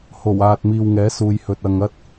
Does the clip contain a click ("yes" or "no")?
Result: no